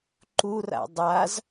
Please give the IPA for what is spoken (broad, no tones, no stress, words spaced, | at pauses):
ǃura̰ dˤaz